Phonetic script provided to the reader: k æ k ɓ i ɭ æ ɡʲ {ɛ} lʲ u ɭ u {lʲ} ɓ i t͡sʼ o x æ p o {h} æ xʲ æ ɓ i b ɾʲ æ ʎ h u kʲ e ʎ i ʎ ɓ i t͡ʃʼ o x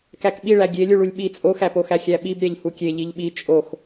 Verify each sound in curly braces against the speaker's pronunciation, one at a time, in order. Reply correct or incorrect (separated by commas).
incorrect, correct, incorrect